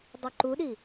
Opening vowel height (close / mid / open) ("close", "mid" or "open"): close